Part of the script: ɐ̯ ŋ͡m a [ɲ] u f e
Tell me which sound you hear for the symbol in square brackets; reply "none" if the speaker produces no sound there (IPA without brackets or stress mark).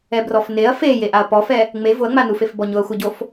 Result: n